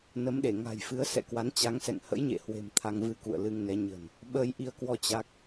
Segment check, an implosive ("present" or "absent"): present